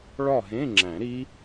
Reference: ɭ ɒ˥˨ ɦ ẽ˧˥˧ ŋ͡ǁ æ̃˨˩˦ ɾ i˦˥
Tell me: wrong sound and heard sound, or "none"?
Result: none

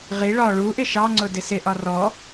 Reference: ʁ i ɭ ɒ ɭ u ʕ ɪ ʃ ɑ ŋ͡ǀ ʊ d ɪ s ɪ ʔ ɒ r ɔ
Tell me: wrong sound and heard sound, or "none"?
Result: ʕ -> ʔ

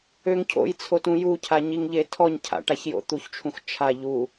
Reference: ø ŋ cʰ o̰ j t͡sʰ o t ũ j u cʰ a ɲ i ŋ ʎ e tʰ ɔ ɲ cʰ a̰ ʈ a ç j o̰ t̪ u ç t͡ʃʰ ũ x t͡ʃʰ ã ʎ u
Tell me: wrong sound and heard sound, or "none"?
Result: ã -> a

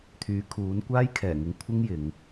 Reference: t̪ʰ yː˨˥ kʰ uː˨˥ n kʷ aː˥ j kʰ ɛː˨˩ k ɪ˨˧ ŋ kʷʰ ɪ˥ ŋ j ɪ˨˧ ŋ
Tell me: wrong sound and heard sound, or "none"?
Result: k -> ŋ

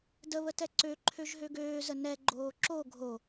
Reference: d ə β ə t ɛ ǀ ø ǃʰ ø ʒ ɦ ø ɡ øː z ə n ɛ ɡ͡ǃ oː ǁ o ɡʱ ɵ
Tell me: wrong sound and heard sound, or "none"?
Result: ɵ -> o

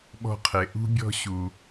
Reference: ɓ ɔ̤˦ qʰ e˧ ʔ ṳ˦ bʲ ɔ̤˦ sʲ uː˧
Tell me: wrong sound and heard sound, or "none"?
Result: sʲ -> ɕ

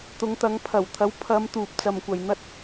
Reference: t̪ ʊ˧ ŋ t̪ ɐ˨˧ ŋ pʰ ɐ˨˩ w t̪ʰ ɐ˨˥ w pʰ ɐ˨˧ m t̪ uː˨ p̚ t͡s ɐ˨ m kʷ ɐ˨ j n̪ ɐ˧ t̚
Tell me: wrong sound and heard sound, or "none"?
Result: ʊ˧ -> ʊ˨˧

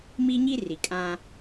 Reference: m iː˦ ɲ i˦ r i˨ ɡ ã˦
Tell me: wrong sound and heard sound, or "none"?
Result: ɡ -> kʼ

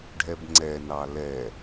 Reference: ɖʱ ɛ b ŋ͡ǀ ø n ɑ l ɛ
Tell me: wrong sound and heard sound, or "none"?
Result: ø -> ɛ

